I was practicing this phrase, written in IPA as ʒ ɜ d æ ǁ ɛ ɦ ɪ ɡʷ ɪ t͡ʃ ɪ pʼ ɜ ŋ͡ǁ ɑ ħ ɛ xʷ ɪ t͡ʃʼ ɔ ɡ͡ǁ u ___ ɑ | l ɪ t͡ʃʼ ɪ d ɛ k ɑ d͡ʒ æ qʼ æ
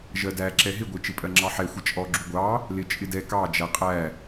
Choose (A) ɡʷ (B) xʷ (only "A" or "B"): A